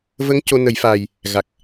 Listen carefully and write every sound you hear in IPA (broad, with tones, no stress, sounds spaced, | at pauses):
v ə˧˥ ŋ c o˧ n ə˨˩˦ j f aː˨˩ j | ɣ a˨˩ k̚